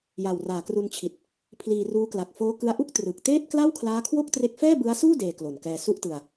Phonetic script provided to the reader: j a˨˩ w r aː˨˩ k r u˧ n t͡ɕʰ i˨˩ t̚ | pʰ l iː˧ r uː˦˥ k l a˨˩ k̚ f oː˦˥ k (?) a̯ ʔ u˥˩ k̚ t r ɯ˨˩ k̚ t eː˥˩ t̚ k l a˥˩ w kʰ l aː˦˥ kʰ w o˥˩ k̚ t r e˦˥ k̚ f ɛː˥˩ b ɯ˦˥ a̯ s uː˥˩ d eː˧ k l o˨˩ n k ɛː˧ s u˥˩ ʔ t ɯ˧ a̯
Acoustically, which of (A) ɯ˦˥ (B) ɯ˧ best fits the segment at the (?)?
A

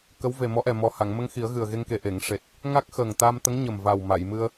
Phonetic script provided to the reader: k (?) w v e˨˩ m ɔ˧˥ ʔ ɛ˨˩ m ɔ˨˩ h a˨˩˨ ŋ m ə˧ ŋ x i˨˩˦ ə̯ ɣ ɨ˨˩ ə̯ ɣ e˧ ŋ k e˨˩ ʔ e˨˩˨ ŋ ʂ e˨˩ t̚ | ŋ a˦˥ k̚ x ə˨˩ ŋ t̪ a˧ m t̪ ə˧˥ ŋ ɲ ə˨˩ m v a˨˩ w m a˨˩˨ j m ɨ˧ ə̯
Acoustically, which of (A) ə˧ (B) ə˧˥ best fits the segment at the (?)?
B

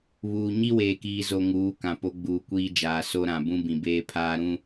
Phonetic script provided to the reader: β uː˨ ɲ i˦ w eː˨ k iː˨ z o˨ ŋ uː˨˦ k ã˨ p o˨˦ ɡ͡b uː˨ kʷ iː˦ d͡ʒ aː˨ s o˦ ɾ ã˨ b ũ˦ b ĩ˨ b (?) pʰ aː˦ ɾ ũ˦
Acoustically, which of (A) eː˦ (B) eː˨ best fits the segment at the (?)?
A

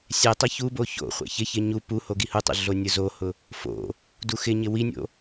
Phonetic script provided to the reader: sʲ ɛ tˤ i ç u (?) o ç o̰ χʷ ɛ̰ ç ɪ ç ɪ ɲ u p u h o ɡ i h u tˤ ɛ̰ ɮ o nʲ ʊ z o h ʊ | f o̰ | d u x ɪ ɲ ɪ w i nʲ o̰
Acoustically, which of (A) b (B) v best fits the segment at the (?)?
A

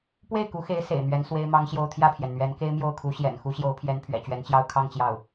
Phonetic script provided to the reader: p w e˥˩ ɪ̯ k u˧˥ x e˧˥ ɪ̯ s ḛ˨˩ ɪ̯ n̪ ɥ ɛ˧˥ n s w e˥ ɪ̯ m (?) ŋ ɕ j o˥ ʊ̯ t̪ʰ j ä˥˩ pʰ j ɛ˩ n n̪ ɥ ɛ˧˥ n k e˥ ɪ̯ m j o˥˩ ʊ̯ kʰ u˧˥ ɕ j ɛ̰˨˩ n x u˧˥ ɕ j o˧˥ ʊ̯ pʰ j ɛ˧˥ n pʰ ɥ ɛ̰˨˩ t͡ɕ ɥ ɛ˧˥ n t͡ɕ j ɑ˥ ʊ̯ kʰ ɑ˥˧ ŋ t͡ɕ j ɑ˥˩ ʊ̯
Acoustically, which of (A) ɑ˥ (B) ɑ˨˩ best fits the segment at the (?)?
A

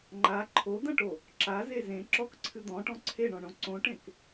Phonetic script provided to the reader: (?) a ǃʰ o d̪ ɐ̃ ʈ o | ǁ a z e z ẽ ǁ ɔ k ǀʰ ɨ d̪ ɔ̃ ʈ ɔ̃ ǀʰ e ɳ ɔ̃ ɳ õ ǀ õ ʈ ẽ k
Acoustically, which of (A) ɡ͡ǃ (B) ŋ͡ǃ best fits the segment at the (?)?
B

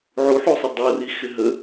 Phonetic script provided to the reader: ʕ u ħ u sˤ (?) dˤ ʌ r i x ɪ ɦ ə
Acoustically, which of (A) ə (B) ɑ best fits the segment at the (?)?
A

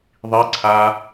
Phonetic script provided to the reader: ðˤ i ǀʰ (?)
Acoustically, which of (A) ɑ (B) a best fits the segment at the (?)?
B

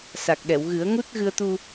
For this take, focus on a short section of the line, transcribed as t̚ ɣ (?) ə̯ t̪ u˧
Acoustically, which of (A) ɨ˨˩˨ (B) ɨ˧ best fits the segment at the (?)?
B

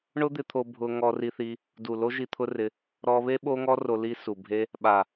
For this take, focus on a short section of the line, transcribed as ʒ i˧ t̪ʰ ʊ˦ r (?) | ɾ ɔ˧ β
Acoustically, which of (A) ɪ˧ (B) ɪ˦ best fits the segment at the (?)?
A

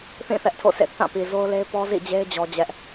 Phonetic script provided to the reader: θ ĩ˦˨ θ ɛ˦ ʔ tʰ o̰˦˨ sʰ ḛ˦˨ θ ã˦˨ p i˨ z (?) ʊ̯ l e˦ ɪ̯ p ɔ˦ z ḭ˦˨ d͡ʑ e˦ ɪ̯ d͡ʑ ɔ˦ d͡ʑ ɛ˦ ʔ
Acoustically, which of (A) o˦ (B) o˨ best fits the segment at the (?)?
A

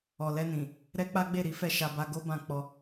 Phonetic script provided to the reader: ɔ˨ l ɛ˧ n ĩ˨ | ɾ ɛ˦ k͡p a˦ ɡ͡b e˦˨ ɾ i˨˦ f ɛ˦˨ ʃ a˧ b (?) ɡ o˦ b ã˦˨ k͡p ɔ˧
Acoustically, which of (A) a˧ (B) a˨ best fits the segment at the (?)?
A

